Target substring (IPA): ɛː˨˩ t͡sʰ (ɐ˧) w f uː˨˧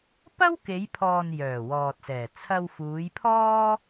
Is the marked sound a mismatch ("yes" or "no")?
no